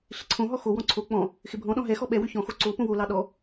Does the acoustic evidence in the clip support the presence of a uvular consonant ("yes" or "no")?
no